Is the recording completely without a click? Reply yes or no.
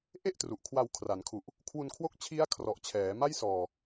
yes